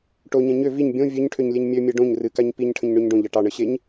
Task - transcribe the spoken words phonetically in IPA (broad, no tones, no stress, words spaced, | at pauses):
ʈoɲɛ̃ ɲø viɲ bʲõ vʲøɲʈʰøɲlʲeɲ mʲømʲɛ ɖõɲ rɨkaɲ piɲʈʰə̃ɲɳøɲ ɖõʎɑ ʈɑɳəɕeɲ